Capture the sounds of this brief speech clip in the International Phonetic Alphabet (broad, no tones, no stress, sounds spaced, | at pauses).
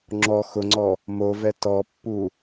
ŋ͡ǁ ɔ x ʊ ŋ͡ǀ ɔ | m o v ɛ t ɔ pː u